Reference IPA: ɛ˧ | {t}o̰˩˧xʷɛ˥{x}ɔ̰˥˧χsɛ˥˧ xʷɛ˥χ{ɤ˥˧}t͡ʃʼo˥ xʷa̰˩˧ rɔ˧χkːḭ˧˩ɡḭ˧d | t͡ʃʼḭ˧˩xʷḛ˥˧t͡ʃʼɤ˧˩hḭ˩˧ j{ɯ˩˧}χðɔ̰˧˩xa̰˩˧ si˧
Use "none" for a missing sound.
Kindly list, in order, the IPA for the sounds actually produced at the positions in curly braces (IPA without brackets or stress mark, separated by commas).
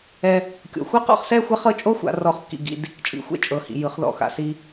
kʲ, q, ɤ˥˧, ɯ˩˧